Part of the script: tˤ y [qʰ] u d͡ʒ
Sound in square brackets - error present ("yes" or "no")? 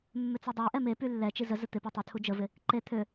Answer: yes